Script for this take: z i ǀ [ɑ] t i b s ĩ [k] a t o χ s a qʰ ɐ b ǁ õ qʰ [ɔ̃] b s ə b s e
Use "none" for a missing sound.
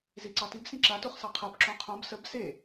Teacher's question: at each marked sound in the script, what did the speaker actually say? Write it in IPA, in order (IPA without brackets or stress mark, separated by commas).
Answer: ɑ, ǁ, õ